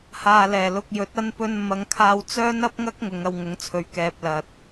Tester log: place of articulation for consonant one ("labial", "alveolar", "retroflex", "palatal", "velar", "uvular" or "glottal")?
glottal